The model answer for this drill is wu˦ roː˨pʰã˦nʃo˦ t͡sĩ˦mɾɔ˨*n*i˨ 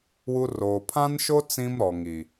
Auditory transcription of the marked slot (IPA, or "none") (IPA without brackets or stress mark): ŋ